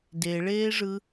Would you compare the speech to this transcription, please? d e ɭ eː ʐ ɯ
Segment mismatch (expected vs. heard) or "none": none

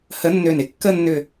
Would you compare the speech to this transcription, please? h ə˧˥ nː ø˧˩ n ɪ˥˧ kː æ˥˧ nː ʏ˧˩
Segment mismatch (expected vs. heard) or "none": æ˥˧ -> ə˥˧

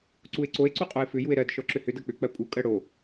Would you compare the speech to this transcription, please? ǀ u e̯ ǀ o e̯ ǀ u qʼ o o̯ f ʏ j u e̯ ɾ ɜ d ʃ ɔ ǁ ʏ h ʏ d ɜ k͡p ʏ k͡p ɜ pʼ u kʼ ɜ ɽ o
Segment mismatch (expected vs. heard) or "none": o̯ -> e̯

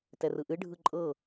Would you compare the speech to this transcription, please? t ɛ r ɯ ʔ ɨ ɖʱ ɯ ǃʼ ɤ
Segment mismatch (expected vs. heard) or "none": none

